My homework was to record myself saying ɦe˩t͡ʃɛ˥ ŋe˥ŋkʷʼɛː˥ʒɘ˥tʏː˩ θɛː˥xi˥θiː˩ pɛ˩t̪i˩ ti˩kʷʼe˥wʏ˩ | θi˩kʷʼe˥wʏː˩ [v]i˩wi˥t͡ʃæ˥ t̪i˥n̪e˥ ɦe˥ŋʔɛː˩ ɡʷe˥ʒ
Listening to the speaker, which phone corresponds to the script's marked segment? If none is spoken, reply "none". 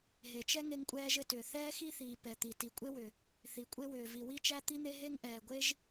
v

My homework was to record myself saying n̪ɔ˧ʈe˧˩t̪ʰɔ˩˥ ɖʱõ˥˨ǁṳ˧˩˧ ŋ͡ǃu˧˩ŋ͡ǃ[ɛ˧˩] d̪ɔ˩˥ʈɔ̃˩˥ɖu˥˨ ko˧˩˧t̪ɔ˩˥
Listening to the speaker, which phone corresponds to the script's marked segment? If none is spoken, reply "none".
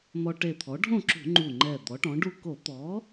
ɛ˧˩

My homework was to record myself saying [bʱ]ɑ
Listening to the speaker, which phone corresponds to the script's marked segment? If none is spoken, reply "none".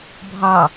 bʱ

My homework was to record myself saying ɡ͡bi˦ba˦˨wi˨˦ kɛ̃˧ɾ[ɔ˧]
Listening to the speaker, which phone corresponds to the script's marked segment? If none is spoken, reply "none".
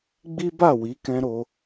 o˧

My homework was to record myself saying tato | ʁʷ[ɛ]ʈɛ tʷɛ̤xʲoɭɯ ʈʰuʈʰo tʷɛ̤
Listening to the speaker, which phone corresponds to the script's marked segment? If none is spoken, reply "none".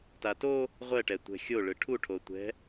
ɛ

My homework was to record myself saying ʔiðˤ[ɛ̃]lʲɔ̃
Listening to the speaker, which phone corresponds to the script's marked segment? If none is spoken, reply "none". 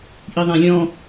æ̃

